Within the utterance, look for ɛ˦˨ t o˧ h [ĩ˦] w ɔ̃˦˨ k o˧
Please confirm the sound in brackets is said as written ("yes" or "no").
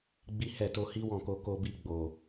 no